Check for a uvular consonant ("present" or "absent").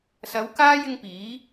absent